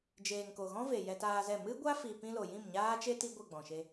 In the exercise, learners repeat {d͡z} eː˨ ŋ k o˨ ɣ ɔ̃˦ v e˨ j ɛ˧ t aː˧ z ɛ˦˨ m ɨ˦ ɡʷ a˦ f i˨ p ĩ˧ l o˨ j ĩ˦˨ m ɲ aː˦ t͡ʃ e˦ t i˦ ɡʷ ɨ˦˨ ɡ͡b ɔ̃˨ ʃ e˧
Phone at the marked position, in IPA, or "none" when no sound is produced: d͡ʒ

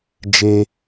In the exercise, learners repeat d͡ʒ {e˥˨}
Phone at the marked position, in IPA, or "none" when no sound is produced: e˥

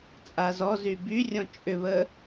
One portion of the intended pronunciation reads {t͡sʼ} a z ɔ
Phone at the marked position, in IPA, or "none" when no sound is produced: t͡sʼ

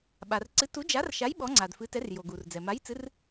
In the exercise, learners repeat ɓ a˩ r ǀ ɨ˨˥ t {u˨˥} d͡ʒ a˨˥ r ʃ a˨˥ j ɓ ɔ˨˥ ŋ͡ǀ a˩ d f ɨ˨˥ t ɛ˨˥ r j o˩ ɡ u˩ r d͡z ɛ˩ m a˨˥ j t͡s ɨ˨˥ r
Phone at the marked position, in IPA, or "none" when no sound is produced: u˨˥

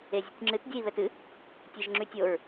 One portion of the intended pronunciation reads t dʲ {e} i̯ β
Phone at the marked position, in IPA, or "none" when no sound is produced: ɛ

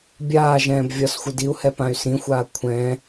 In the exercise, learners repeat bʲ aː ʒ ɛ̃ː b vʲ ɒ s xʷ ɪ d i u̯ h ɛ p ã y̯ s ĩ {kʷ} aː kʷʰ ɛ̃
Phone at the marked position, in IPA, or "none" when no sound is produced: xʷ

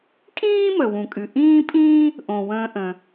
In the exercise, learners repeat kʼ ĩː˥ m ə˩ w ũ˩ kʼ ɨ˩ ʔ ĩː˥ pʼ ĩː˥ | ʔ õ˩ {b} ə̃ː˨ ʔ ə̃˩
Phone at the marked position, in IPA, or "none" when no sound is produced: w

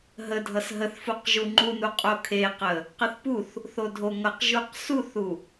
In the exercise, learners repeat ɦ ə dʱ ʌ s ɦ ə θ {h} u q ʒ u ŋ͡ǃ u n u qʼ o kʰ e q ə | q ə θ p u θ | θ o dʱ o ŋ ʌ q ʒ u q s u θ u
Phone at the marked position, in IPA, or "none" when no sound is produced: f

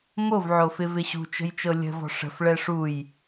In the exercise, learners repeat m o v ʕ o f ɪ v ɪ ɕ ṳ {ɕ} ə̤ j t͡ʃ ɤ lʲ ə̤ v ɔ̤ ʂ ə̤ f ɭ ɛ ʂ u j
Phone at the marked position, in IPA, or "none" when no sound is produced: t͡ʃ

